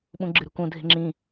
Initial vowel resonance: nasal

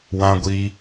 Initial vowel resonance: nasal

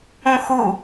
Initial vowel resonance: nasal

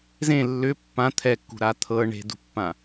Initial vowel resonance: nasal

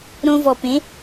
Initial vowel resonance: nasal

